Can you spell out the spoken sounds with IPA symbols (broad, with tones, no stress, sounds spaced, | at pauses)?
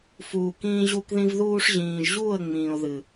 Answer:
f uː˨ k ĩː˧ ʑ u˧ k ð ĩ˧ v ð uː˧ ʂ ʑ ĩː˨ ʒ ʑ uː˦˨ ə̯ ŋ͡m ĩː˨ ʊ̯ ð ɨ˨